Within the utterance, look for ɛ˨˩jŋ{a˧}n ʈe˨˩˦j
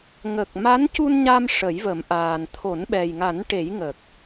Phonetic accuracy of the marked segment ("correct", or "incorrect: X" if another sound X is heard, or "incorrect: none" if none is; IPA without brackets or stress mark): incorrect: a˨˩˦